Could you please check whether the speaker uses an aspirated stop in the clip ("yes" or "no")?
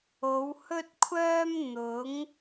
yes